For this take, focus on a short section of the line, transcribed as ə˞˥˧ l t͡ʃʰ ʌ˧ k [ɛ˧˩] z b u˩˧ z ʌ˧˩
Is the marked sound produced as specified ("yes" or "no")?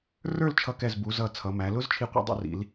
yes